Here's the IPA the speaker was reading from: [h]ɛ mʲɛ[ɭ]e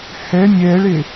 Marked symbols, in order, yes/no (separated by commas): yes, yes